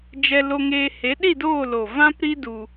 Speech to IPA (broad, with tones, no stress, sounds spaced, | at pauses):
d͡ʒ ɛ˧ l o˧ ŋ eː˧ h e˨˦ ɗ i˦˨ d oː˦˨ l o˨ v ã˦ p ɾ i˦ d u˧